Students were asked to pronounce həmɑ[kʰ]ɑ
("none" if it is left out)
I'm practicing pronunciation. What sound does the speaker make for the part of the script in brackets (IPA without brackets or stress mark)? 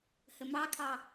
kʰ